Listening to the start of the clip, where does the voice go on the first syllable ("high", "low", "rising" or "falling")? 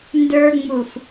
high